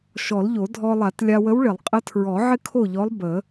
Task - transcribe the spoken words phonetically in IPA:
ʃɔ˨˩˦lʎo˨˩˦ dʱɔ˧lˠa˨˩˦t lʲa˧wə˧˥wɭɪ˨˩˦lˠ qʼə˧˥tʰɹɔ˨˩˦ ʕɪ˥kʰo˥˨ʎɔ˧˥lˠ bə˨˩˦

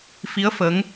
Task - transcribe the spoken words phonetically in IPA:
fi˧˥ə̯ fə˧˥ŋ

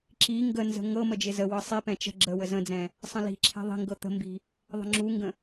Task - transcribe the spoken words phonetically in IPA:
ǁi ŋɡənzə̤ ŋɤ məd͡ʒɪzəwɤ sˤipɛ̃ t͡ʃə̤ ɡ͡ǁə wəzə̃d͡zɛ̃ | sˤə̃li̤ǁʰɛ̤ ðˤi̤ŋɡɤ t̪ə̤mbi̤ | ðˤə̤ŋ͡ǁuŋɡə̃

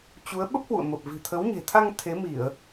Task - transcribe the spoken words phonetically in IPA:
t͡ɕu˨˦ə̯ ɓə˦˥p̚hwṵ˧˨ə̯mə˨˩p̚ vi̤˨˩t̪ʰə˨˦wɲe̤˨˩t̪ʰa˧ŋ t̪ʰe˨˦mi˧˩˨ə̯

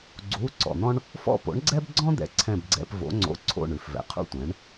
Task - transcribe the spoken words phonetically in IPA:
ɡ͡ǀu˧˥˧ ǀɔ̰˨n̪ɔ̃˥ɳ | fɔ̰˦˨po̰˨˥ɳɡ͡ǀɛ˥bɡ͡ǀɔ̃˥ d̪ɛ̰˨ǀʰɛ̃˦˨bɡ͡ǀɛ̰˧˥˧p vo̰˨˥ŋ͡ǀo̰˧˥˧ǀʰo̰˦˨ ɳʉ˨fvɛ̰˨˥qʰṵ˥tʷɛ̃˨˥ɳ

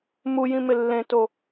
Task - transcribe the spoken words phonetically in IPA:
mujĩmɪ lːẽto

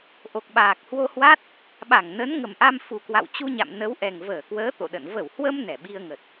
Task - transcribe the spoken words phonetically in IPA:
ʔo˨˩k̚ɓaː˨˩k̚hwo˧hwa˦˥t̚ | ɓa˧˩ŋ nə˨˦nŋə˨˩mʔa˧m fu˨˩kwa̰˧˨w t͡ɕu˧ɲa̰˧˨mnə˨˦wʔɛ˨˩ŋ vəː˧˩kwəː˨˦ t̪o̰˧˨ɗə̰˧˨n və˧˩whwə˧m nɛ˧˩ɓi˧ə̯ŋə˨˩t̚

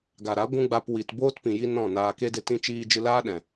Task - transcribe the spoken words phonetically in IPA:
ɡa˨ɾa˨˦ ɡʷũ˦ɡ͡ba˧pwi˨t boː˦tpĩ˨ji˧ nɔ̃˦˨naː˧ ke˧de˧t ĩ˦t͡ʃiː˧ d͡ʒɨ˧laː˦ ɗɛ̃˨

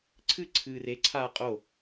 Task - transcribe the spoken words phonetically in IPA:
ǀʰɨ ǀʰɨːre ǀʰaːqʼo

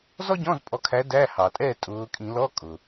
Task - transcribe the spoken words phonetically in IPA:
zɔ˥ɟɔ̃˧˥˧zpʼɔ˨˦kʰæ˨˦ dæ˧˥˧hɑ˩tʼɛ˥˨ tʼʊː˨˦ kʼĩ˧˩˧ lɔ˧˥˧kʼʊ˩

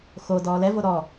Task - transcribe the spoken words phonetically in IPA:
xo dɔːlɛvo ɾɔ

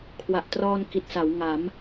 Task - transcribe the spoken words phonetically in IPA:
kʰwa˨˩ʔtrɔː˧nki˨˩t̚ sa˩˦wŋa˩˦m

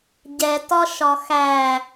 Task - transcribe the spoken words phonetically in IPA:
ɟɛtɒ ʃɒxæ

